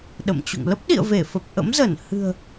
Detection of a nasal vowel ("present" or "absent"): absent